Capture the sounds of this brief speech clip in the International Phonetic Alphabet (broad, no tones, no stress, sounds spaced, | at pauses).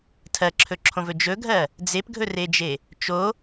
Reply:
tʰ ɜ ǁʰ ɵ ǁʰ õ v ɵ d͡ʒ ɵ ɡʱ ɜ | d͡z e p ɡʱ ɵ r e d͡ʒ e | t͡ʃ o